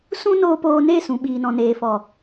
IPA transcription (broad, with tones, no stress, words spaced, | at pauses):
sũ˦noː˧poː˧ ne˦˨sũ˨ ɓiː˨nɔ̃˨neː˨fɔ˨